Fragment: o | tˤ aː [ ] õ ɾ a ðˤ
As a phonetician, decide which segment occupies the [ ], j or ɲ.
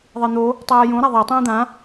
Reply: j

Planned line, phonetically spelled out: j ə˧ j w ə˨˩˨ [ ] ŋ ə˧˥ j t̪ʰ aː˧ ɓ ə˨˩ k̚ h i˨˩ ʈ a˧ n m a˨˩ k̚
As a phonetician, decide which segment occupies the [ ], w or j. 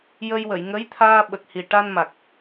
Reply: j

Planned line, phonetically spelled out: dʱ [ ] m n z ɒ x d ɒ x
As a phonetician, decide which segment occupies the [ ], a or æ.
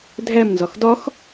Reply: æ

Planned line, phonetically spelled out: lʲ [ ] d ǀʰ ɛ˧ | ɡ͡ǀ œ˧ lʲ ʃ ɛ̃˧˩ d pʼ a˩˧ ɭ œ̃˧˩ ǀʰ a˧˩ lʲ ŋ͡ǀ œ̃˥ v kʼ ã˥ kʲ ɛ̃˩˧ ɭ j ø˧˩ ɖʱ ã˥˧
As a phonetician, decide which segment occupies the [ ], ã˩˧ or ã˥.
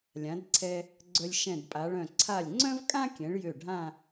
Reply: ã˩˧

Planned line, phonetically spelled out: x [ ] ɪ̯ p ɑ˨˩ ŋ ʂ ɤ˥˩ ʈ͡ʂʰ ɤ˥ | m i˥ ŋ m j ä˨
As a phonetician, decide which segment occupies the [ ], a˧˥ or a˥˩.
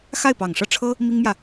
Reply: a˥˩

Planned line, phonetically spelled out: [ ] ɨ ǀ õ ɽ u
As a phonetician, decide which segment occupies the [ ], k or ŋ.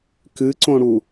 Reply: k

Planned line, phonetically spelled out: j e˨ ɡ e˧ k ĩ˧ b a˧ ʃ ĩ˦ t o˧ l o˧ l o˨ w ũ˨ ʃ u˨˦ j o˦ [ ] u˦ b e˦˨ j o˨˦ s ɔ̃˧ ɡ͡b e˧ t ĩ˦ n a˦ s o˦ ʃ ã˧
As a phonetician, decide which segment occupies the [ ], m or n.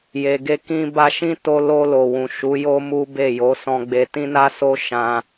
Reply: m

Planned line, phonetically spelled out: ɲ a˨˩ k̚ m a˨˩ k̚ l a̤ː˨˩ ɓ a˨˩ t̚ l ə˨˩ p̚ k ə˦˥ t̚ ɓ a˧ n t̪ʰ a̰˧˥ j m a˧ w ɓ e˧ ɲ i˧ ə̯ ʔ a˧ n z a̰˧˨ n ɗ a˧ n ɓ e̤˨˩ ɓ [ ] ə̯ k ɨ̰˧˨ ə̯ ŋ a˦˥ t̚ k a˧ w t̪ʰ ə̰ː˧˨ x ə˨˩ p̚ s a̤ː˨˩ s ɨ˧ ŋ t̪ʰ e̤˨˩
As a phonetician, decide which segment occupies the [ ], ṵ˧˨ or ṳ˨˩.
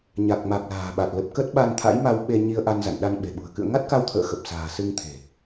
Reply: ṳ˨˩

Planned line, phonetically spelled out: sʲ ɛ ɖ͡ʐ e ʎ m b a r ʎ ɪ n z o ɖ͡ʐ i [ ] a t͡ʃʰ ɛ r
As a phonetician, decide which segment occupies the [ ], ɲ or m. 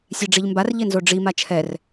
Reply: m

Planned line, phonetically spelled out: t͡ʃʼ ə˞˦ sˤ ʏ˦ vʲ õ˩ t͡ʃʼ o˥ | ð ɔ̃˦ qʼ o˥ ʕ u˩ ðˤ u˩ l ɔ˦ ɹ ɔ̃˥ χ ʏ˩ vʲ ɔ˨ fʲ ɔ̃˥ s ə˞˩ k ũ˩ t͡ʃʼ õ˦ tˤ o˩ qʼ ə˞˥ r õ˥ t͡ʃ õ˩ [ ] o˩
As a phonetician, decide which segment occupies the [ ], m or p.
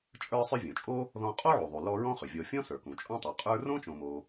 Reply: m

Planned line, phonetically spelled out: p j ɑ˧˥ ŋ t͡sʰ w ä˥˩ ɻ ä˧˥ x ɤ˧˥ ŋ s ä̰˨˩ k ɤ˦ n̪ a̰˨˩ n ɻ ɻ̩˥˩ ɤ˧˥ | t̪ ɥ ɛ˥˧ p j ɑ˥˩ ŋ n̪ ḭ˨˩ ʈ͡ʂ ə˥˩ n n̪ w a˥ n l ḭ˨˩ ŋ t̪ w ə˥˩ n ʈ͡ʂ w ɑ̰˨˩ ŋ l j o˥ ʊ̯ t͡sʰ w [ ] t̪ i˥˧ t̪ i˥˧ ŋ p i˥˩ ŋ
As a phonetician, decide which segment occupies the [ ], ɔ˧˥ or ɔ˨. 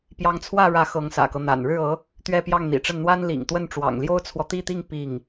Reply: ɔ˨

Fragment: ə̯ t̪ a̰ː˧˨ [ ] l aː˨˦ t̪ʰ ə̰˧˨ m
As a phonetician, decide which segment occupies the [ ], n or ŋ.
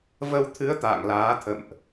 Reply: ŋ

